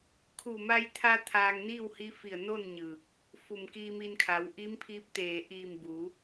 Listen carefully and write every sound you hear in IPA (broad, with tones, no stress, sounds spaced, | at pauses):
kʰ u˧˩ m a˧ j t̪ʰ a˧ t̪ʰ aː˧ ŋ n iː˥˨ w h i˧˥ f i˧˩ ə̯ n o˥˨ n ɲ ɯː˧˩ k̚ | f u˧˩ m k iː˧ m i˧ n kʰ a˩˧ w ʔ i˧˥ m pʰ iː˧˥ p̚ t̪ eː˧˩ ʔ iː˧˩ m b u˩˧